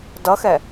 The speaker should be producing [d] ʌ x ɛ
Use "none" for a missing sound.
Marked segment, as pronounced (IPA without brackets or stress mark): d